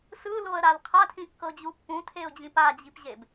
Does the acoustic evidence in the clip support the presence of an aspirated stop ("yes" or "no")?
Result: yes